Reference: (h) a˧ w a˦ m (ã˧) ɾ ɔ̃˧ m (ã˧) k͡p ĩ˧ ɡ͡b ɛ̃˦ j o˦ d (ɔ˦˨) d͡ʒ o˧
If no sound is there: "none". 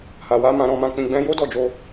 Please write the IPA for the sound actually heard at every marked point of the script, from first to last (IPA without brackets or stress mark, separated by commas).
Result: h, ã˧, ã˧, ɔ˦˨